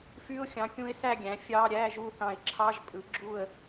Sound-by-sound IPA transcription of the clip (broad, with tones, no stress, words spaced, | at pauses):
fy˧˥˧ʊ̯xʲɑ̃˩˥kʲũ˧˥ɪ̯ sæ˥˨ɡʲæ̃˩˥ fʲɑː˧˥˧ɾʲæː˧˥˧ʒuː˥˨ θɑ̃˧˩ɪ̯ǁʰɑ˧˥˧ʒpʼɯ˩˥ ɡ͡ǁu˥˨ə̯